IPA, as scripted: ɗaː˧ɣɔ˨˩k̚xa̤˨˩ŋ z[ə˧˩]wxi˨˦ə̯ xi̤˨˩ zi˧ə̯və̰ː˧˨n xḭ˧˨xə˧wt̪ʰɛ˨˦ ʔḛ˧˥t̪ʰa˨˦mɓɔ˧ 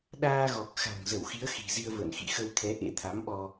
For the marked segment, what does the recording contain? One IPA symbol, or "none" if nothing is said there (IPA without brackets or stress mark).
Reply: ə˧˩